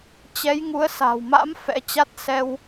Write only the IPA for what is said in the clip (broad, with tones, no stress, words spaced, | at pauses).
t͡ɕɛ˨˦jŋu˨˦ə̯sa̤˨˩wma̰˧˥m fɛ̰˧˥t͡ɕa˦˥t̚ sɛ˧w